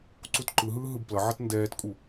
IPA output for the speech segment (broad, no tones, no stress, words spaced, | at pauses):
ǀutǃɯɦɯː ɦɯbplʌʕʌt ndɛːtkʼu